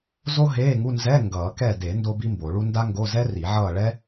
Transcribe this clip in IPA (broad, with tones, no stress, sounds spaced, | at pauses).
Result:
z o˥ ɦ eː˧˥˧ ŋ u˧˥˧ n z ɛ˧˥˧ ŋ ɡ ʌː˨˩˦ k ɛ˦˨ d e˨˩˦ n d o˥ b i˥ m b o˨˩˦ ɭ u˥ n d a˥ ŋ ɡ o˧˥˧ z ɛ˥ r i˨˩˦ ʕ ʌː˦˨ ɭ ɛ˥